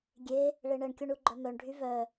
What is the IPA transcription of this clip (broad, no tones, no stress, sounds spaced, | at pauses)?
ɡʲ e | ɭ e ɳ ɛ ɳ kʲ o ɳ u ɡ͡ǃ œ m œ ɳ ɖʱ y v œ